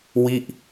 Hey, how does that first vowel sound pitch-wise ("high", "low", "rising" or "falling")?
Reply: falling